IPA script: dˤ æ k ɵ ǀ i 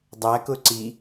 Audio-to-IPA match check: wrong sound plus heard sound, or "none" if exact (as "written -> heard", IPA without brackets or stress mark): ɵ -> ʊ